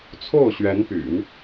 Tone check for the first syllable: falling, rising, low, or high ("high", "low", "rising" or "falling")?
falling